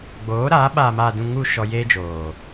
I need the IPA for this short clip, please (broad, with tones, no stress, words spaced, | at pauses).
ɡ͡boː˨˦ɾaː˨˦ ɓaː˨maː˨dũ˨ ŋu˨ ʃɔ˧jeː˦d͡ʒoː˨